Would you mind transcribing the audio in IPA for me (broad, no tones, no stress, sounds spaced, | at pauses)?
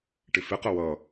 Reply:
ʈ ɪ f ɪ q ə w ʌ